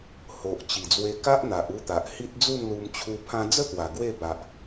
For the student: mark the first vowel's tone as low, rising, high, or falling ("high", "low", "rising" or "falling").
low